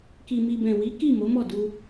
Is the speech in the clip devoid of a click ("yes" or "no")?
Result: yes